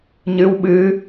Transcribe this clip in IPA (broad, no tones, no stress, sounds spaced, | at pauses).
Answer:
ɲ ɨ w ɓ ɨ